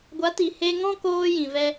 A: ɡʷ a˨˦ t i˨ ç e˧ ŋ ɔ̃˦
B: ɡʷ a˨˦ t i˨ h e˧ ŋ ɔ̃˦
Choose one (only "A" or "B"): B